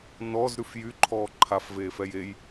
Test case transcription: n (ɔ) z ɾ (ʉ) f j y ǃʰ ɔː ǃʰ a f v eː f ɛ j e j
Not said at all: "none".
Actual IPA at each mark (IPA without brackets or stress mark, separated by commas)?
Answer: ɔ, ʉ